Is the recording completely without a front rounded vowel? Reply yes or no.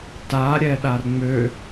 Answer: no